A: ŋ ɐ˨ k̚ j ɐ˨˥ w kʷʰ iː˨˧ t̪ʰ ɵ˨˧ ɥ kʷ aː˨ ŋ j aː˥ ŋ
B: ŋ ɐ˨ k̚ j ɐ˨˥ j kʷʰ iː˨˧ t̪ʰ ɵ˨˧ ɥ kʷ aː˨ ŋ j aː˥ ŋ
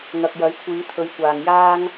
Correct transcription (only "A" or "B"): B